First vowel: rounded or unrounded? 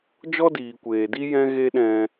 rounded